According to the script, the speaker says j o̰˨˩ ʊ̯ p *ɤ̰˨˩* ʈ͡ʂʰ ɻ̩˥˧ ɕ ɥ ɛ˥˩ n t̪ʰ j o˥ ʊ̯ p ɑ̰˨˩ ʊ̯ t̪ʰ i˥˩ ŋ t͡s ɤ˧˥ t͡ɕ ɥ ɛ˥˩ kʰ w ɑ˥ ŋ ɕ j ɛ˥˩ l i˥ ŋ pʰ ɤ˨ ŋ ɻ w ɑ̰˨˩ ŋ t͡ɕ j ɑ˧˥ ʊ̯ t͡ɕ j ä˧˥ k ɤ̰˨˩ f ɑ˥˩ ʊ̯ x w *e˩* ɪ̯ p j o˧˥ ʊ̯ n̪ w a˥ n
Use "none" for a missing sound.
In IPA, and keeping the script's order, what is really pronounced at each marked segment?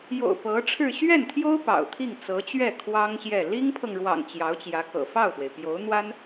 ɤ˧˥, e˩

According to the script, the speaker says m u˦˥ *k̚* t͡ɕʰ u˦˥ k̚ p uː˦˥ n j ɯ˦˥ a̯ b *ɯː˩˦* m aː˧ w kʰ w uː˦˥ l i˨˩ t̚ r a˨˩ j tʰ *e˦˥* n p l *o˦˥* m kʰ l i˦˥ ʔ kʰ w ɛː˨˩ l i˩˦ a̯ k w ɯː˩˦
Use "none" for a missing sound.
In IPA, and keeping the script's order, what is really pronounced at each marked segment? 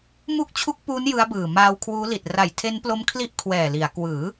k̚, ɯː˨˩, e˦˥, o˦˥

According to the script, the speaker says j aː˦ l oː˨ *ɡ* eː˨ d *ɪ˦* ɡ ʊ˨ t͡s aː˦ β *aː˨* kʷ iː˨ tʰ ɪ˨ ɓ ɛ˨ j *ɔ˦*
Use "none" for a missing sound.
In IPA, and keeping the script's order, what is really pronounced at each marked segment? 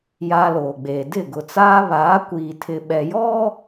ɡ͡b, ɪ˦˨, aː˨˦, ɔ˦

